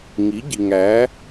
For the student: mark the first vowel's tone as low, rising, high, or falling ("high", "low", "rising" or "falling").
rising